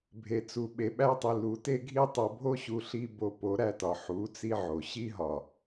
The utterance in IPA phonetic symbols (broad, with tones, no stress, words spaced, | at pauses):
bʱe˨t͡su˨ ɓe˨ɓæ˧tˤi˨ lu˨˦te˦ɡʱi˦ tˤo˧ bʱo˦ɕu˧ ɬi˦ bo˧po˨˦ɾæ˧tɒ˨ ħu˨˦t͡si˧ʕo˨ ɕi˦ɦɒ˨